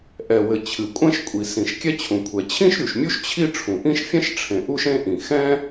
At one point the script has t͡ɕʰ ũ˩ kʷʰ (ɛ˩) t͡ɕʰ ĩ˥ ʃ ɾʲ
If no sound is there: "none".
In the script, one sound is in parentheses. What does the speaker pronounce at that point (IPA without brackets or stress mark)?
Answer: ɛ˩